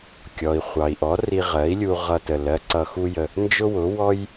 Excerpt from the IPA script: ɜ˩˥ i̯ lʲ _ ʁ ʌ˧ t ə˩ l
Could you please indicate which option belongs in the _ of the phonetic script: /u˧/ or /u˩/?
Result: u˧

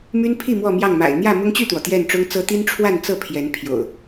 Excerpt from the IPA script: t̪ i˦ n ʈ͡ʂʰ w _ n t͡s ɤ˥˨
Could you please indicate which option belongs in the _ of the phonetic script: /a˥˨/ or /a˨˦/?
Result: a˥˨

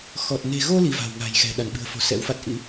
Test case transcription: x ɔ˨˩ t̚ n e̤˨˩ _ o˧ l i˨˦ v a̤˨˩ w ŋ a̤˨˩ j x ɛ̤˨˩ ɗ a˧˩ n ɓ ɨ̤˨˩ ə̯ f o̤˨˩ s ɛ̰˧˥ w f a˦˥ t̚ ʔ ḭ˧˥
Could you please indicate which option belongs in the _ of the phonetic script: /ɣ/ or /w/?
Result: ɣ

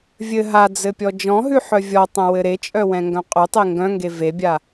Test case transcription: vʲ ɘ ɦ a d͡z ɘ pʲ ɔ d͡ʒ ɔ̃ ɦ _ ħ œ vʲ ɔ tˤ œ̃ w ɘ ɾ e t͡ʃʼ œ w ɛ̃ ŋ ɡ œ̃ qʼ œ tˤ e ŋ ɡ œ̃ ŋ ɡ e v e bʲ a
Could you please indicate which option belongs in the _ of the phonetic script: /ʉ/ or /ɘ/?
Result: ʉ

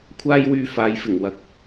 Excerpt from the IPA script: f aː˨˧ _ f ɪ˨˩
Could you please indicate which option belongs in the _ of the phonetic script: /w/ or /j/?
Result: j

